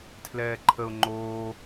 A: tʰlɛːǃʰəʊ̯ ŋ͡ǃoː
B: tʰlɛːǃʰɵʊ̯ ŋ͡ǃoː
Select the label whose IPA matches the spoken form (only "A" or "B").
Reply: A